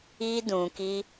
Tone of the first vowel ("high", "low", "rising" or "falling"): high